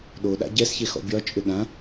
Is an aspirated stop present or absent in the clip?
absent